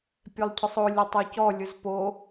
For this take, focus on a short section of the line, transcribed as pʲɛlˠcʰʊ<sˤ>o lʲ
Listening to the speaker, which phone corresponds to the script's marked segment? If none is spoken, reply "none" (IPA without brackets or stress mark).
sˤ